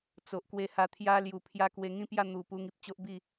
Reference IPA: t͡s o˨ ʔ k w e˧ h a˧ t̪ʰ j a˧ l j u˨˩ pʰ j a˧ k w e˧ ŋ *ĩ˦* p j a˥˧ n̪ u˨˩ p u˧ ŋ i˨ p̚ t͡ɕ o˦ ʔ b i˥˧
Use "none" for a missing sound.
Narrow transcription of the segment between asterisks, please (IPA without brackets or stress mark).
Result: ĩ˦